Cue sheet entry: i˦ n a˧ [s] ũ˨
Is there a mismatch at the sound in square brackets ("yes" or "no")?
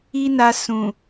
no